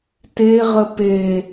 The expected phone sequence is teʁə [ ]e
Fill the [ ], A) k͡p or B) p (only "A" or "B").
B